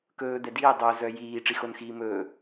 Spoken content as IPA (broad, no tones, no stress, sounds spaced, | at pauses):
k ɵː d̪ ɛ d iː dˤ o z œ j iː ʈ͡ʂ i x o n x iː m ɵː